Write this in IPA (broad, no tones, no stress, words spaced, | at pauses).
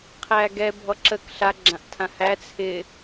qʰæɡɛ bʱɔǁək ɬa ɡ͡ǁãʔtʰãhæ t͡sʰɪ